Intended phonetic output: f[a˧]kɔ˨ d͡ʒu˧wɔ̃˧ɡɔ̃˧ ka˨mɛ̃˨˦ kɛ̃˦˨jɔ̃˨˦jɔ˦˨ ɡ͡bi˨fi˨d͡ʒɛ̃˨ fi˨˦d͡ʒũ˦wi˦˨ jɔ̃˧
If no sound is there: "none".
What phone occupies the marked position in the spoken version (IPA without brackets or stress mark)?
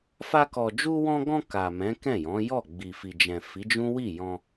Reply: a˧